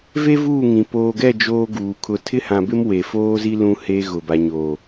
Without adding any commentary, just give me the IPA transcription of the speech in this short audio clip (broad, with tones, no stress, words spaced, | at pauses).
ve˦vuː˦˨ŋĩ˨ poː˨ɡɛ˦˨ d͡ʒoː˦ɡuː˨ kʰʊ˨tʰɪ˦hã˨bɪ˦m we˨foː˦zi˦ lũ˦he˦ ɣʊ˨ba˨ɲoː˨